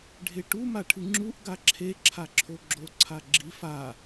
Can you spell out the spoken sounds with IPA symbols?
ɖʱ e ʈ u m a ʈʰ ɨ ŋ͡ǁ u ʔ ɡ a ǁʰ e ǁʰ a ǁʰ o ɡ͡ǁ o ǀʰ a ɡ͡ǁ i f a

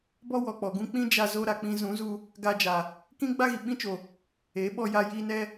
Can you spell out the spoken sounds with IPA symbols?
b ɔ˦ w ɔ˨ k͡p ɔ˨ ɡ ũ˦ k͡p ĩ˦ d͡ʒ a˧ z o˧ ɾ a˨ k͡p ĩ˧ z ũ˨˦ z u˧ | ɡ a˧ d͡ʒ a˨ | k ĩ˦ ɡ͡b a˦ ɣ i˨ ɓ ĩ˦ t͡ʃ o˨ | e˨˦ ɓ ɔ˧ j a˧ j i˧ n ɛ˦

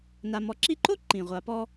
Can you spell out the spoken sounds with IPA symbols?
n a˨ m ɔ˨ ǁ i˦ ǃ o˥ ǃ ĩ˩ ʁʷ a˨ p ɔ˥

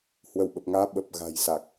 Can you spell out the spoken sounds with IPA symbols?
h w ə˧˩ w ɓ ə˨˩ p̚ ŋ aː˧ ɓ ə˨˩ p̚ ɣ a̤˨˩ j s a˨˩ k̚

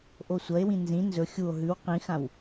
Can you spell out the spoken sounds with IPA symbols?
ʔ o sʷ ɐ e̯ w ĩ n z ĩ n z ɵ xʲ u o̯ ɦ ʉ w q ĩ x ã w

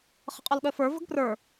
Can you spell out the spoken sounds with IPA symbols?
χ ə̤ qʼ ɔ l ɠ œ f ə˞ v ə̤ ɡ p r ə˞

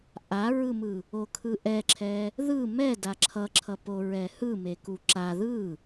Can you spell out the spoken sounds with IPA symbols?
ʔ a ɹ ɯ m ɯ | o kʰ ɯ ʔ ɛ ǁʰ ɛ | ð ɯ m ɛ d a ǁʰ ʌ ǁʰ ʌ p o ɹ ɛ h ɯ m e k u ǁ a ð ɯ

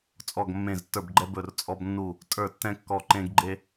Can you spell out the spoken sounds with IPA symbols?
t͡sʼ ɔ˧˩ ɡ mː ẽ˧˩ z tː ə˞˧˩ b ɡ͡ǃ ɛ˧ b ɵ˧˩ r t͡sʼ ɔ˧ b nː u˧˩ | tʼ ə˞˧˩ tː ɛ̃˧ kː ɔ˧˩ ǃ ẽ˧ ɡ ɡ͡ǃ e˧

